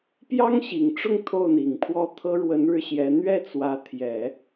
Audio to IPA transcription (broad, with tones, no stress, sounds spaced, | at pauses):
p j ɑ˥ ŋ ɕ i˨˩ ŋ ʈ͡ʂ ʊ˥˧ ŋ t̪ʰ o˥˩ ʊ̯ n̪ i˨˩ ŋ pʰ w ɔ˥˩ t̪ʰ ɤ˥ ɻ w ə˧˥ n ɻ ɻ̩˥˩ ɕ j ɛ˧˥ n̪ ɥ ɛ˥˩ t͡s w ä˧˥ t̪ʰ j ɛ˨˩˦